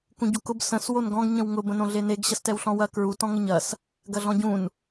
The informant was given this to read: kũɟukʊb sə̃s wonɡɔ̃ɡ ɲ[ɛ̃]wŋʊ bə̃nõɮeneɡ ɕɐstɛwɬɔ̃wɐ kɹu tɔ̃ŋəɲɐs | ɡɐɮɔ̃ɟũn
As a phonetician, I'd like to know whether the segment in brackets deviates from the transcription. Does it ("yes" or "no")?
yes